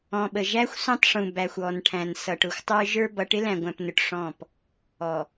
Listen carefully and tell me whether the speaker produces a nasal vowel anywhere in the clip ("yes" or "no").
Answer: yes